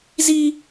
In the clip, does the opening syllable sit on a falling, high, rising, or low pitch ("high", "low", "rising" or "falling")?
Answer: high